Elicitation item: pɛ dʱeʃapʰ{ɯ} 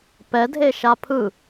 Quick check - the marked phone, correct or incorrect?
correct